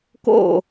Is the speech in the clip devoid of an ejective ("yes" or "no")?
yes